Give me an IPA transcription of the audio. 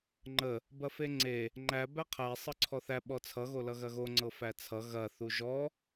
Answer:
ŋ͡ǃ ə | b ɐ f e ŋ͡ǀ e | ŋ͡ǃ æ b æ qʰ æ sˤ ɤ ǀʰ ɔ θ æ ɓ ɔ t͡sʰ ʌ ɣ o l ʌ ɣ ɐ ɣ o ŋ͡ǀ ɤ f æ t͡sʰ ʌ ɣ ɐ θ u ʒ ɔ

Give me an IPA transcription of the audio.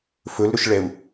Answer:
f ɵ l ɾ ɵ ʃ ɭ ɛ u̯

